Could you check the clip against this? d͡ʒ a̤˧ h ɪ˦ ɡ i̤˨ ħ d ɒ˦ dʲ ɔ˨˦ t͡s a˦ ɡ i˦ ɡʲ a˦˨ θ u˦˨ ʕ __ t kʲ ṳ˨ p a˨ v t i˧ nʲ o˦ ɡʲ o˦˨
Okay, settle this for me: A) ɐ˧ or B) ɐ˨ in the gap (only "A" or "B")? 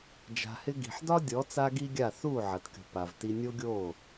B